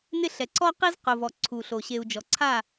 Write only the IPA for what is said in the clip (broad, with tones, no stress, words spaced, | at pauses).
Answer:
nɪ˦˨ɬɛ˨ ǀɔ˦qi˦z qʊ˨vɔ˨ ǀʰu˨ ɬo˨ ɕe˨u̯d͡ʒɔ˨ǀʰa˦˨